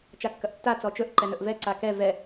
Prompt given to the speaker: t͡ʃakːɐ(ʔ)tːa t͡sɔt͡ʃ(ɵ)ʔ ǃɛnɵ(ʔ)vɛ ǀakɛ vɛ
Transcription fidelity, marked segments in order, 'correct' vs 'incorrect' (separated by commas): correct, correct, correct